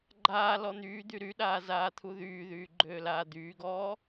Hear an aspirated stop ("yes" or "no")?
yes